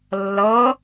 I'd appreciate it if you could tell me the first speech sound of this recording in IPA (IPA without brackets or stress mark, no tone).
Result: lː